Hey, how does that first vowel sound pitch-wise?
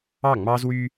falling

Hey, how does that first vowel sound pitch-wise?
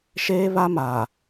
high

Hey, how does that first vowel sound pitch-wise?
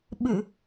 low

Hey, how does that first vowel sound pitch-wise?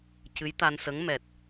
rising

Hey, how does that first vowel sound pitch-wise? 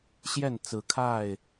falling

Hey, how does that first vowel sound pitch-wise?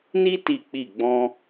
high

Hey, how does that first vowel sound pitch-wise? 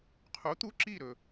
rising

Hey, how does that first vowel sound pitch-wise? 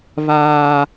high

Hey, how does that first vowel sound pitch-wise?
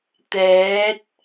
rising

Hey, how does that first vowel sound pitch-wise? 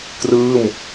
falling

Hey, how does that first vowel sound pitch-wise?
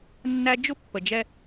high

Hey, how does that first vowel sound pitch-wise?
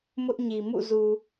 high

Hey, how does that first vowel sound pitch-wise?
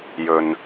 low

